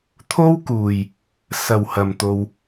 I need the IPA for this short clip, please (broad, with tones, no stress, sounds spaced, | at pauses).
t̪ʰ o˥ w k uː˨˩ j | s ɐ˨˩ w h ɐ˨˩ m t̪ o˨ w